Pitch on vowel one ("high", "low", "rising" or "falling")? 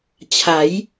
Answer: rising